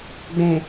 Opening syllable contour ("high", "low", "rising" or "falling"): low